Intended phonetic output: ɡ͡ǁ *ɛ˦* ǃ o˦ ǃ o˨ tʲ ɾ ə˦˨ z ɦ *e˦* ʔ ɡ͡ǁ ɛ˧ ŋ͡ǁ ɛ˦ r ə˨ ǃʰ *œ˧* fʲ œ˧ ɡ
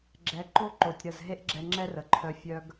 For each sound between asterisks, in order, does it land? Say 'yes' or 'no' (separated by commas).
no, yes, yes